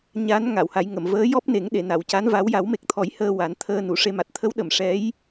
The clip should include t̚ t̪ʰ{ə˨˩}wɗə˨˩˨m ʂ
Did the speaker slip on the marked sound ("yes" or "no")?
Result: yes